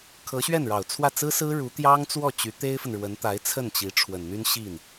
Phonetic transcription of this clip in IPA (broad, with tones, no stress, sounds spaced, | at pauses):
kʰ ɤ˧˥ ɕ ɥ ɛ˥˩ n ɻ ɑ˨˩ ʊ̯ t͡sʰ w ä˥˩ t͡s ɹ̩˥ s ɹ̩˥ ɻ u˧˥ t̪ j ɑ˥ ŋ t͡s w ɔ˥˩ t͡ɕ y˧˥ t̪ e˥ ɪ̯ f ə˨ n ɻ w ə˧˥ n t̪ a˧˥ ɪ̯ t͡sʰ ə˥˩ n t͡ɕ i˧˥ ʈ͡ʂʰ w ə˨˩ n n̪ y˥ n ɕ i˥˩ n